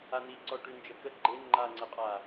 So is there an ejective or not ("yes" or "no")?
yes